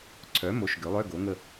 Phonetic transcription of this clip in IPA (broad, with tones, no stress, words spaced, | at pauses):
ǀʰœ˩˥mo˩˥ʃ ɡø˩˥lˠœ˧˥˧ɡo˩˥ ŋə˦˨